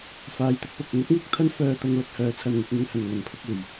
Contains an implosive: no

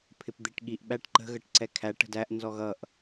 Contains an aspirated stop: yes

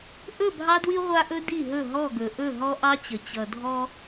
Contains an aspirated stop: no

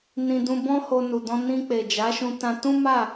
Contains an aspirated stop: no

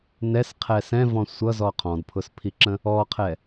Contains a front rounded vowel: no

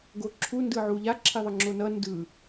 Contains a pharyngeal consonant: yes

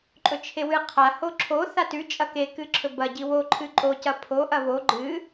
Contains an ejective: yes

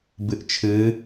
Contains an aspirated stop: yes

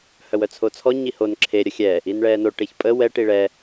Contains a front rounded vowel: yes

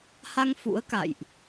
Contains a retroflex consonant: no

